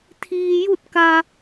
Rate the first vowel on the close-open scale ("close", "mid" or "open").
close